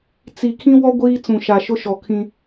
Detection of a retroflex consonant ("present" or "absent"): absent